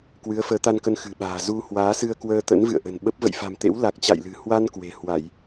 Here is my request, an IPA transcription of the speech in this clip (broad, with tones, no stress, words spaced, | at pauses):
kwɨ˨˦ə̯fəː˨˦t̪a˧nkə˧n xɨ̤˨˩ɓa̤ː˨˩ zu˧hwaː˨˦sɨ˧ə̯ kwəː˧t̪ə̰˧˥n vɨ̰˧˨ə̯ʔə̤˨˩n ɓə˦˥p̚ və̰˧˨jfa̤˨˩mt̪ḛ˧˥w la˨˩k̚t͡ɕa̰˧˨jlɨ̤˨˩ hwa˧n kwe̤˨˩hwa˧˩˨j